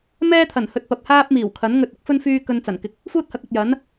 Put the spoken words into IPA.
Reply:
m ɛː˥ t̪ʰ ɐ˨˩ n h ɵ˧ t̚ p ɐ˨ p̚ h aː˥ p̚ m iː˨˩ w kʰ ɐ˨˥ n ŋ ɵ˧ t̚ ɪ˨˥ k̚ f ɵ˥ n f yː˥ k ɵ˧ n t͡s ɐ˨˩ n k ɪ˧ k̚ | f uː˥ t̚ h ɐ˨˥ k̚ ɵ˨ t̚ j ɐ˨˥ n

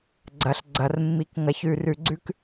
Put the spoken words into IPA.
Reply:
ɡ͡ǀ ɐ˨ ɬ ɡ͡ǀ ɐ˨ r mː i˨ k ŋ ɐ˨ ç ʉ˨ r ʉ˨ ɡ͡ǀ ʉ˦ k

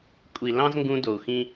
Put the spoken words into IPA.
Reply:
kʷʼ i˨ l ɑ̃˦ z ŋ ɡ ũ˧ d o˨ u̯ x ĩ˦

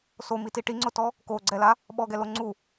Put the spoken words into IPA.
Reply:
s o m i t i ʈ i ŋ͡ǀ ʊ t ɔ | k o ɡ͡ǀ ɛ l a | ɓ ɔ ɡ ɛ l o ŋ͡ǀ u

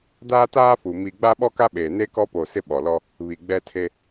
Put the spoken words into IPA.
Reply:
d aː˦ t aː˦ f u˨ m i˨ ɡ͡b a˦ ɓ ɔ˦ k a˦ ɓ eː˨ n e˦ k ɔ˦ p o˨ s ɪ˦ ɓ ɔ˨ l ɔ˦ | β i˨ ɡ͡b ɛ˦ tʰ e˦

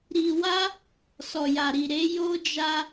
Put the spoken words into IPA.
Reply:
ɾ i˧ w a˦ | s ɔ˨ j a˨ ɾ i˨ ɾ e˨˦ j o˦ d͡ʒ a˧

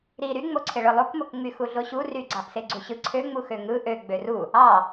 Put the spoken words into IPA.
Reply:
ɾ i ɾ y ŋ͡m o ǀʰ e ɭ ɯ lˠ o k m o k ŋ͡m y x u ɮ o ɕ u r y ɡ͡ǀ ɑ ʔ s e ɡ͡ǀ u ɕ ɯ ǀʰ ø ŋ͡m u x ø ŋ ɯ ʔ ø ɡ͡b ø r u | ɑ

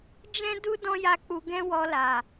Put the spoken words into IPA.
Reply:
d͡ʒ ɛ̃˦ d u˦ d ɔ̃˦ j a˦˨ k͡p u˧ ɡ ɛ̃˦ w ɔ˧ l a˨

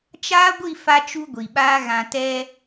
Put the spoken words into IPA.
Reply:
t͡ʃ aː˦ ɡʷ i˦˨ f a˦ t͡ʃ u˦ ɡʷ i˨ ɓ aː˦ ɣ ã˨ t ɛ˦

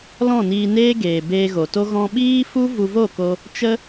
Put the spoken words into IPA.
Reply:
l ɔ̃˦˨ n iː˧ n eː˦ ɡ eː˨ b eː˧ ɣ o˨ t o˦ ɣ ɔ̃˧ ɓ iː˦ f u˦ v u˧ v o˦˨ k o˧ | t͡ʃ ə˦

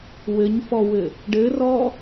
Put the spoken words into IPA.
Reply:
w ɘ ɲ f ɔ w ɘ | ɖ ɘ r ɔ

